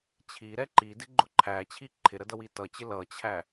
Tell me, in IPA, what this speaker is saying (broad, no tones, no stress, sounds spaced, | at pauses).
t͡ɕʰ i ɾ ɛ ǃ i d ɪ ɡ͡ǃ ʊ ǃʰ æ t͡ɕʰ i ǃʰ ɪ ɾ ə d ʌ w i t ʌ t͡ɕ ɪ l ʌ t͡ɕʰ æ